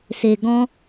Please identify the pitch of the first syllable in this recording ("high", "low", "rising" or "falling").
low